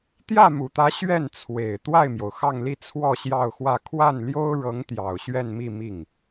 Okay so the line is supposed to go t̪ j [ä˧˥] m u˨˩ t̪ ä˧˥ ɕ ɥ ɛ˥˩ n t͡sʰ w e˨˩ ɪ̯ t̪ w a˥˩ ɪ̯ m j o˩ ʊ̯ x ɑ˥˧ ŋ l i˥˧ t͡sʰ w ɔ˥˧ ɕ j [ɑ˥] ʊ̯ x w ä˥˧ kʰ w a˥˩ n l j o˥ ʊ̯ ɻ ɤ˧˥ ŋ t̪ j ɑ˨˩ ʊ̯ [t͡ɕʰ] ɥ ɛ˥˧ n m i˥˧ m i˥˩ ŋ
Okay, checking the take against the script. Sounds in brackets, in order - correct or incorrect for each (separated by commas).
incorrect, incorrect, incorrect